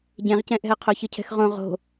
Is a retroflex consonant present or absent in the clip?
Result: absent